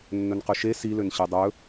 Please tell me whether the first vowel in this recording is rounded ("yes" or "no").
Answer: yes